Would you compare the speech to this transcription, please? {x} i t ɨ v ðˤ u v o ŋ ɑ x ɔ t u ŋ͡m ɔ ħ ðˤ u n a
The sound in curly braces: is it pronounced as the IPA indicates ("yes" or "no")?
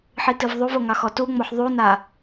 no